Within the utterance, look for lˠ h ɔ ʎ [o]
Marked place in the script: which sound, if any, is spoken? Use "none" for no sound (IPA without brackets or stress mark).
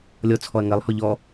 ɔ